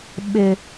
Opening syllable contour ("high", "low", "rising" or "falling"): low